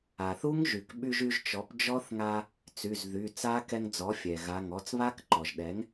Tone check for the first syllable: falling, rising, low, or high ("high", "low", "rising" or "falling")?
low